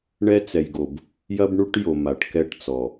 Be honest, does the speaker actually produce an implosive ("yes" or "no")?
no